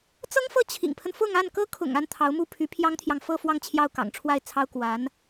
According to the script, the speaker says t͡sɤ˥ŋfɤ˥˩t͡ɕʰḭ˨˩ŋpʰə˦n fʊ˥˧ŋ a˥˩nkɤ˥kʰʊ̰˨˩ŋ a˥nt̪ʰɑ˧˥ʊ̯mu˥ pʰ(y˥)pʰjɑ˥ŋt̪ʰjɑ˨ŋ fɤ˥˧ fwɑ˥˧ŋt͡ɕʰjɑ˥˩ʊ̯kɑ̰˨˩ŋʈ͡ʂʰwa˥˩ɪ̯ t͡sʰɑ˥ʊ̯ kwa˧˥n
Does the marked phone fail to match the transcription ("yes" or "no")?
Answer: yes